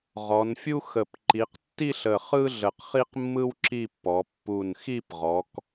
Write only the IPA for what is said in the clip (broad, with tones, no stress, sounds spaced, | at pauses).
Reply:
ʁ ɔ˩˧ n fʲ u˥ x ə˨˩ p ǃ i˩˧ q tː i˥˧ ɬ ə˨˩ χ ɯ˥ ɮ ə˨˩ q χ i˥ q mː ɯ˥ w ǁ i˥˧ pː ɔ˩˧ pː u˨˩ n x i˥˧ p ʁ ɔ˩˧ k